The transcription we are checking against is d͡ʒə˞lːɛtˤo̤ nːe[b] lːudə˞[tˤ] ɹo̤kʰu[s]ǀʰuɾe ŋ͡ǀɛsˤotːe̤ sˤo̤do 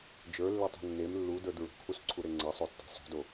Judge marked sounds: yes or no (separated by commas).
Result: no, no, yes